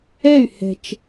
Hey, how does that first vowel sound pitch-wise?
falling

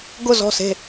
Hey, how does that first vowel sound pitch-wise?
falling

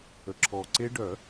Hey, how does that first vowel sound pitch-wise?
low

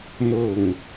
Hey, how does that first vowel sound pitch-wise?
falling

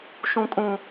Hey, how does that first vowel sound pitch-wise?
high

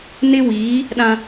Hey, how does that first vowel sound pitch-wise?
high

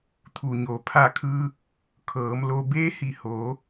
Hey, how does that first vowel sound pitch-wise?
low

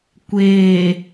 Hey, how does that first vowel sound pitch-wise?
low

